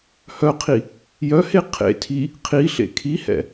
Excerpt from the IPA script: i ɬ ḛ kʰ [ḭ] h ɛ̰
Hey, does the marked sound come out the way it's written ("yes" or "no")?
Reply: no